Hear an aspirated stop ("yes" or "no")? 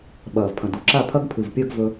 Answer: yes